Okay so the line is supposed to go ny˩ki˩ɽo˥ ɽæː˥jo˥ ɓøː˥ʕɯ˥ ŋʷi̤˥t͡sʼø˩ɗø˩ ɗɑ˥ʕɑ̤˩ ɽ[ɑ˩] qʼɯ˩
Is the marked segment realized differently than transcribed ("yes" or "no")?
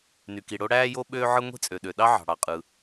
no